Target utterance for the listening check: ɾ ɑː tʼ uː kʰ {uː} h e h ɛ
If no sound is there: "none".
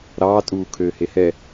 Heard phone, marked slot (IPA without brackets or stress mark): øː